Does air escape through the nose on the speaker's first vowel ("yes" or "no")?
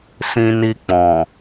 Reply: yes